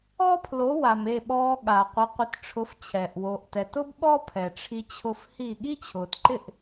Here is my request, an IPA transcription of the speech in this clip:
ɔ˥ pʰ l o˩˥ w a˩ m e˥˩ ɓ ɔː˧ ɠ a˩ qʷ ɪ˩˥ qʷ ɪ˩˥ t ʈ͡ʂʰ ʊ˩˥ f t͡ɕʰ ɛ˩ ʔ w o˩ ʔ t ɛ˩ t ʊ˥ b ɓ ɔ˥ pʰ ɛ˩ ʈ͡ʂʰ i˧ t͡ɕʰ ʊ˧ f h i˥˩ ɠ i˥ t͡ɕʰ ʊː˩ t ǃ ɪ˥˩ ʔ

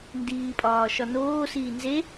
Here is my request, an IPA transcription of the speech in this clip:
n d iː pʼ ɒː ʃ ɒ n oː s iː n z e

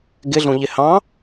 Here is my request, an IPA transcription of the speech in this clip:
ɡ ɪ ɮ ũ ʎ ɪ h ɑ̃

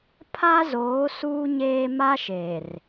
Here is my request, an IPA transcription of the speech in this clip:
pʰ a˦ z oː˨˦ s uː˦ ɲ eː˦ m a˦ ʃ e˨ r

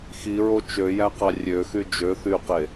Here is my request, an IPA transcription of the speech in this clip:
x i ɹ o t͡ʃ ø j æ q ɑ rʲ ø x y d͡ʒ ø θ y q e

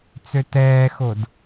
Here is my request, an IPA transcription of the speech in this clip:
t͡s ø t ɛː x o d

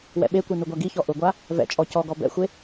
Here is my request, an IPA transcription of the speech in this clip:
w ɛ̰ ɓ e kʷ e n u ɡʷ a ɡ i ç ɔ ʔ ʊ ɡʷ a | v ɛ̰ t͡ʃʼ ɔ c ɔ ɡ ɔ b ɛ̰ xʷ e

